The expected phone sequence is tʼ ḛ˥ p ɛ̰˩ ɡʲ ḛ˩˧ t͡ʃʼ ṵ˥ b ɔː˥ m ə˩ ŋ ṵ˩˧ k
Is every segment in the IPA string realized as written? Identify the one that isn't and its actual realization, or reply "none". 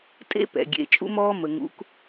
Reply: b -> m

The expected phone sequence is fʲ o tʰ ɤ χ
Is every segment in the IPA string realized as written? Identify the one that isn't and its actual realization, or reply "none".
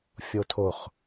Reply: ɤ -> o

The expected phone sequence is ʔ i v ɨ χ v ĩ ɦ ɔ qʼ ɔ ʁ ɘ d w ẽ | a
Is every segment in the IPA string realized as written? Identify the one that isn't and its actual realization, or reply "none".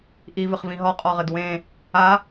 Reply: none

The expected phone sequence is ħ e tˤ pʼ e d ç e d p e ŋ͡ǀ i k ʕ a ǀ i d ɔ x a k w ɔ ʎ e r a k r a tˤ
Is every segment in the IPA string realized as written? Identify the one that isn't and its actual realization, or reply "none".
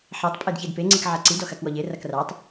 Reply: none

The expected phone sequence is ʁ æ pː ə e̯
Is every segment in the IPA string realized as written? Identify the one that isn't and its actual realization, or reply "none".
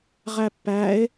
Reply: ə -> æ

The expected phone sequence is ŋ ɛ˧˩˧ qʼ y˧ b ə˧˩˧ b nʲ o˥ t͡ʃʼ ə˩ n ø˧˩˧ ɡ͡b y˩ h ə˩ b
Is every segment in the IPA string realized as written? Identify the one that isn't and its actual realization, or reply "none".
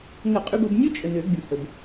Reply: ɛ˧˩˧ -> ə˧˩˧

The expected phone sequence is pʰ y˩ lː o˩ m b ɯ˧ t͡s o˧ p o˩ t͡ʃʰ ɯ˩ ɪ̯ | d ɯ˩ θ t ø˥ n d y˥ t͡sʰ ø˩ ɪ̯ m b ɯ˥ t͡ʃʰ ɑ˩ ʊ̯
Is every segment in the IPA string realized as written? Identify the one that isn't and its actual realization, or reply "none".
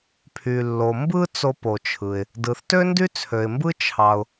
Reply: none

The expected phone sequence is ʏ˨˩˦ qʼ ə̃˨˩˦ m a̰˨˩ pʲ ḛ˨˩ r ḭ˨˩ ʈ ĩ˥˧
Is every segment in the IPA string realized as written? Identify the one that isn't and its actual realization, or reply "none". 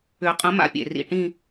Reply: none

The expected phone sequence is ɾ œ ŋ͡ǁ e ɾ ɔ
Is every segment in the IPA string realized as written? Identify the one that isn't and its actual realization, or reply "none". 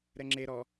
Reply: œ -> ɛ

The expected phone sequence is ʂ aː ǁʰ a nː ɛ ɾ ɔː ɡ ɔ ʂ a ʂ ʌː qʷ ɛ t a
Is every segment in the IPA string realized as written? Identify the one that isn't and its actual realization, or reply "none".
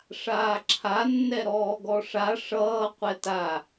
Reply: none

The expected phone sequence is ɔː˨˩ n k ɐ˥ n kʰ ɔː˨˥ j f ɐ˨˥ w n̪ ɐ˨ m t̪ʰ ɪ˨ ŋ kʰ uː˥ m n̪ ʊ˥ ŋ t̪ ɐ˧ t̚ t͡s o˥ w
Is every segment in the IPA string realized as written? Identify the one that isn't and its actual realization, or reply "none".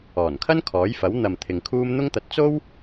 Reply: k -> kʰ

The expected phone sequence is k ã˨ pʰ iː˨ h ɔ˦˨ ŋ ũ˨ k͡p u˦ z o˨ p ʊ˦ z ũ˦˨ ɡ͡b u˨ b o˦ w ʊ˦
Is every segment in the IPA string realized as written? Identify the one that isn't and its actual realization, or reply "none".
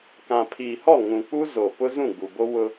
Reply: none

